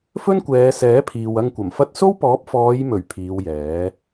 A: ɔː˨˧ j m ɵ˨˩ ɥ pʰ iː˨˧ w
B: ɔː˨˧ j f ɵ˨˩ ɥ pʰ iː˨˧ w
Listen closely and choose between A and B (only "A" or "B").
A